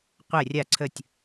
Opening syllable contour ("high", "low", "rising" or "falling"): falling